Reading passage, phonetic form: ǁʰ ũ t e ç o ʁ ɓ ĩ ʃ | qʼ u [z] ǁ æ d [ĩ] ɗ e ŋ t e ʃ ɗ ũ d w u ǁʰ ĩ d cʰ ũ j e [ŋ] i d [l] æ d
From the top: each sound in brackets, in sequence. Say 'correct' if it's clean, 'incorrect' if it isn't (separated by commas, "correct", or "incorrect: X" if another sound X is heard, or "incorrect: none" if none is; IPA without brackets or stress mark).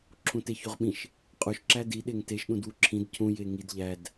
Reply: incorrect: ʃ, incorrect: i, correct, incorrect: ʎ